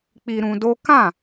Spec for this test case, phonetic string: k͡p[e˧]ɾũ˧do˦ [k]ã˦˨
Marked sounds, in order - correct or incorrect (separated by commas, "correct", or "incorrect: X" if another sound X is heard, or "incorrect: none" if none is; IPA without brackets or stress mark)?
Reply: incorrect: i˧, correct